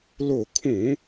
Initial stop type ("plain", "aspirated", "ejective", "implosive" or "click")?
aspirated